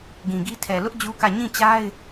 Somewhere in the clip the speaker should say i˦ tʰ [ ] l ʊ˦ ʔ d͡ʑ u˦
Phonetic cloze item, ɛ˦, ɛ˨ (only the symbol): ɛ˨